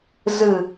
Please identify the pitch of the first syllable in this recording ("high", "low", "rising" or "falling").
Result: low